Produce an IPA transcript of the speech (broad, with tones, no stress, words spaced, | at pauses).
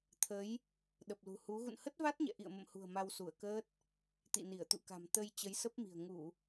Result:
t̪ʰə˨˦j | ɗə˨˩p̚lṳ˨˩hu˨˦ ɣṵ˧˨nhə˦˥t̚va˦˥t̚ɲɛ̰˧˨ ʔḭ˧˨ə̯mə̰˧˨mhṳ˨˩ə̯ ma˧wsu˧˩ə̯kəː˦˥t̚ | t̪ḭ˧˨ni˧˩ə̯t̪ṵ˧˨ka̤˨˩m t̪ə˧j t͡ɕə˨˦jsə˦˥p̚mi̤˨˩ə̯ ŋu˧˩˨